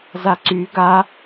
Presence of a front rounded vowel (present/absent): present